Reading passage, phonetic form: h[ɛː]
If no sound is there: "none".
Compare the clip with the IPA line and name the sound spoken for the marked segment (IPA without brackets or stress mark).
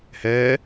ɛː